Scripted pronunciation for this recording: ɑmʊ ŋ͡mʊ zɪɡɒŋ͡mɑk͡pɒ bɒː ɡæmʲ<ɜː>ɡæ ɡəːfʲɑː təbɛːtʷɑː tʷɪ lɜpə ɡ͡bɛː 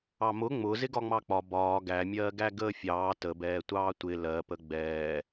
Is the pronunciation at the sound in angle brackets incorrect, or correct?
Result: correct